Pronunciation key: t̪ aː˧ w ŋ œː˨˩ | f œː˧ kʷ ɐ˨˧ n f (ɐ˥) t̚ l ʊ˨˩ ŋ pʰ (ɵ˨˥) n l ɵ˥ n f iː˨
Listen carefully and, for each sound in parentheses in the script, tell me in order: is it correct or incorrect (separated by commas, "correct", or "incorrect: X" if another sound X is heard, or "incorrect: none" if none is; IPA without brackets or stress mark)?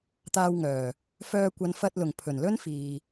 incorrect: ɐ˧, incorrect: ɵ˨˩